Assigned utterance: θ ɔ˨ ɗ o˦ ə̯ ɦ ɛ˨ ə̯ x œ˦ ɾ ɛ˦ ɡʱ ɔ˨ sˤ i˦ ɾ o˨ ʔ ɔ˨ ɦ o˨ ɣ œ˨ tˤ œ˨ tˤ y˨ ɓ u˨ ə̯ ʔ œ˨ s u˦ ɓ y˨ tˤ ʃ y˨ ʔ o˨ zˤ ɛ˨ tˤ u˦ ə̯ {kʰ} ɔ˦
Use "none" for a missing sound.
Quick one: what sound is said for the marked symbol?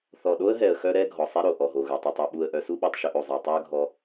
ɡʱ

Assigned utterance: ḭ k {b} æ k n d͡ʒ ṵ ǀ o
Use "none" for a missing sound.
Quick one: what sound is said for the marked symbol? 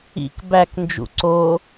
b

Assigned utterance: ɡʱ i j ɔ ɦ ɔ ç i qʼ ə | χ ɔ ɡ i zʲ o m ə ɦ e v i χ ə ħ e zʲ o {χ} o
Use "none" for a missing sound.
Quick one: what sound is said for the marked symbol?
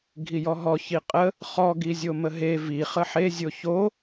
ç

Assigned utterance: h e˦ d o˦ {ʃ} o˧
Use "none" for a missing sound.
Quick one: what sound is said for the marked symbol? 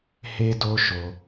ʃ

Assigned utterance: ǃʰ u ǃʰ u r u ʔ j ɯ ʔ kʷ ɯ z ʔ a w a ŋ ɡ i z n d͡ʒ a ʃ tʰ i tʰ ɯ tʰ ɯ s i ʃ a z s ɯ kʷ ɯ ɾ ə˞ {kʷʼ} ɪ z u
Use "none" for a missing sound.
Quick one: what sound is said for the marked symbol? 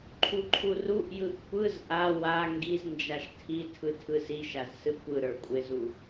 kʷʼ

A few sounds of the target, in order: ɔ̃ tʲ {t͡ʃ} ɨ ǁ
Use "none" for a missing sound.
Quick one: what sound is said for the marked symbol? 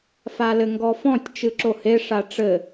t͡ʃ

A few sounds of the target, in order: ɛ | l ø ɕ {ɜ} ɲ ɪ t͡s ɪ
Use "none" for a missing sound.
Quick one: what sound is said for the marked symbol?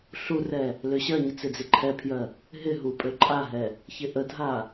ɜ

